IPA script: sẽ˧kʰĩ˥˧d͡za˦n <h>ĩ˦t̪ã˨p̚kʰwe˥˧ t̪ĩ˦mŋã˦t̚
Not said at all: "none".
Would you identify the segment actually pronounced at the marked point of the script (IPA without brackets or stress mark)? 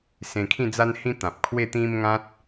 h